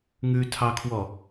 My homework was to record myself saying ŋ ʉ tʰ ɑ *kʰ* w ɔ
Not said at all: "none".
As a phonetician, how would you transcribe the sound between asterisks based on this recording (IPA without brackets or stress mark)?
kʰ